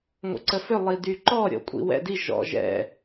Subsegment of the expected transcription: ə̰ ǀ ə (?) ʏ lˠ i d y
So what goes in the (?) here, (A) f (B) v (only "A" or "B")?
A